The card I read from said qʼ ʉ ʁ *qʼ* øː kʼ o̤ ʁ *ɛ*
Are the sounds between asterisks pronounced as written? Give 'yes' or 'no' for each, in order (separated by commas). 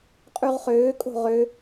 no, no